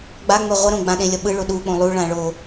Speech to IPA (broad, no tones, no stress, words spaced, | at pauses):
ɡ͡baŋ͡mɛ ʁʷʌɾõ ɡ͡bãɗẽlʲʌ ɓɯɭo ɗuk͡põ lˠuɭã ɭo